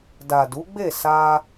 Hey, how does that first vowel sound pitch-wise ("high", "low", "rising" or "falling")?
low